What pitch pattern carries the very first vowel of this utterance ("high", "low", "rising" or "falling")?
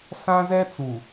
high